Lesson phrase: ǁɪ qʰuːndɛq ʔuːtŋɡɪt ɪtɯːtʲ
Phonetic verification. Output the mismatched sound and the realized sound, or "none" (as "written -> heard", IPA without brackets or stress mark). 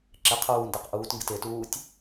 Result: ɯː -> uː